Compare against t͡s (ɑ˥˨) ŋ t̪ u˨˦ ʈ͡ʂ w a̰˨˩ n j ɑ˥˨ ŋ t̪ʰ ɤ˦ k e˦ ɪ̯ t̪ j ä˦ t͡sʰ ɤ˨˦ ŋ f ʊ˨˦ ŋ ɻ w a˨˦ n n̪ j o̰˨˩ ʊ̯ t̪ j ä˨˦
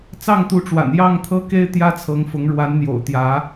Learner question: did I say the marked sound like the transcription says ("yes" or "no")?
yes